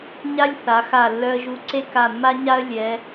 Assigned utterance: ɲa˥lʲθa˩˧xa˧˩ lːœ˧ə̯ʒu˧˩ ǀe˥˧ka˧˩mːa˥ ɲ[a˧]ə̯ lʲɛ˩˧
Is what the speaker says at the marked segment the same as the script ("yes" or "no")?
no